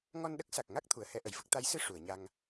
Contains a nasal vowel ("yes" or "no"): no